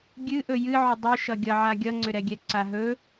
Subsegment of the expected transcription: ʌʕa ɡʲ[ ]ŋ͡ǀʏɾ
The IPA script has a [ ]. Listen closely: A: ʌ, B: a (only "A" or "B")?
A